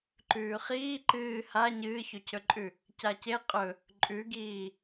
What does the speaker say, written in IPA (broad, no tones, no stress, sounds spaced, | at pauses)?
ǃ ʉː χ iː ǃ ɨː h a ɲ ɨː ç ɵ cʰ ɵ ǃʼ ʉ | c a c e qʼ ɵ | ǃʼ ʉ ɡ iː